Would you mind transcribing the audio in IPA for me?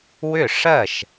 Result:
w ʏ˥˩ ʂ ɜ˥˩ ʃ

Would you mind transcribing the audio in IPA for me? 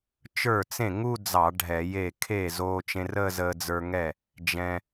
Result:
t͡ʃ ə˞˥˩ t͡s ẽ˥˩ ŋ u˥˧ d͡z ɑ˧˩˧ ɖʱ ɛ˧˩˧ j e˥˩ kʰ e˥˩ z oː˧ t͡ʃ ẽ˧ r ə˥˧ z əː˧ d͡z ə˞˧ ŋ ɛ˥˩ | d͡ʒ ɛ̃˧

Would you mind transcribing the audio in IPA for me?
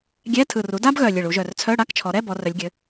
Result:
ɡʲ ɛ˧˥˧ tʰ ɯ˨˩ r u˩˥ d a˥ b ɣ œ˨˩ lʲ ɘ˨˩ ɭ u˩˧ ʒ œ˨˩ r t͡sʰ œ˧˥˧ ɽ a˧˥˧ k t͡ʃʰ ɔ˩˧ ɾ ɛ˧˥˧ b ɔ˩˧ r œ˩˧ lʲ ɡʲ ɘ˩˧

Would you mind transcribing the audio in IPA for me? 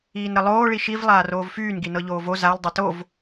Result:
iː n ɾ ə lˠ oː ɭ i ʃ i v lˠ aː r oː v f yː n ɡ i n ɤ ʎ oː v o z a l dˤ ɛ t o v

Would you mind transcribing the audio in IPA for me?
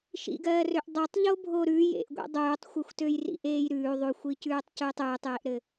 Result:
ʃ ḭ ɡ ɜː r ø ʔ dˤ ø tˤ ʎ o bʱ o ɾ ʉ j ḛ ʔ ɡʷ ḛ dˤ ʉː tˤ xʷ ɘ xʷ t ø j r ḭ ʔ eː j ɾ ʉː ðˤ ʉ xʷ i c ʉː tˤ c ʉː tˤ ʉː tˤ j e ʔ ɾ ɘ

